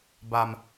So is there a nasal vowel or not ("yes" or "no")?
no